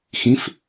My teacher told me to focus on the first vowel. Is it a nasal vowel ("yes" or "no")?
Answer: yes